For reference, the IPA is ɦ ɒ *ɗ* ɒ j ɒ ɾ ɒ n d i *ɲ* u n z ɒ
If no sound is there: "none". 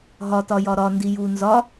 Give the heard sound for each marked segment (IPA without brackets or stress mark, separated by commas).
t, j